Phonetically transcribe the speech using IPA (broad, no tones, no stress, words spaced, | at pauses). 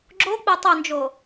ɡ͡ǁo k͡petˤɵnd͡ʒo